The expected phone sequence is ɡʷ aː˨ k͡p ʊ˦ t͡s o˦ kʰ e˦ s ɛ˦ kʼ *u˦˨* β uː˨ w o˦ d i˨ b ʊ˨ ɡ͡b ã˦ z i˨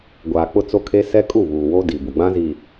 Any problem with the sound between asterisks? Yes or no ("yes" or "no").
no